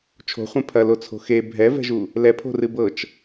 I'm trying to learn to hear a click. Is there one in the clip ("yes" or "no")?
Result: no